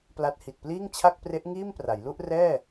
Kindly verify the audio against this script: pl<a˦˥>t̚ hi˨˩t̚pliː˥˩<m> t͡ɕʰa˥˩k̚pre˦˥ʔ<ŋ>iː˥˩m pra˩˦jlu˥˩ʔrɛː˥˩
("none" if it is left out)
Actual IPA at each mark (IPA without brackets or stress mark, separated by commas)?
a˦˥, ŋ, ŋ